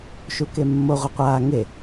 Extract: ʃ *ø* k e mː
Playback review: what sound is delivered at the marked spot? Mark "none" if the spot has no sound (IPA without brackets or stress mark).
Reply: u